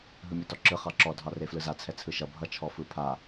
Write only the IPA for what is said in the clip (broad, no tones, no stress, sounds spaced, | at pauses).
ɦ ɯ mʲ ɔ t ɔ ǁ ɯ χ ɑ ǁ ɔ dʱ ɑ r e f l ɯ z a t͡sʰ ɛ t͡sʰ ɯ ʃ ʌ bʱ ʌ t͡ʃʰ ɔ f ɯ pʰ a